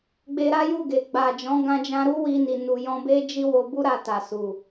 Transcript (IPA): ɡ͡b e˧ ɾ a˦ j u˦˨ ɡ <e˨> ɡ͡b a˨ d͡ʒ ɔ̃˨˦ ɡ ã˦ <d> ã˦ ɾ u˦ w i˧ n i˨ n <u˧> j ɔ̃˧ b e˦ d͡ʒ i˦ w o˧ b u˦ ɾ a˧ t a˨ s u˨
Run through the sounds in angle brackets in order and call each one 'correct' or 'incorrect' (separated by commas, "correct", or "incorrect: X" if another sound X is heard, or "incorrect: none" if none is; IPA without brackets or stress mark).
correct, incorrect: d͡ʒ, incorrect: u˨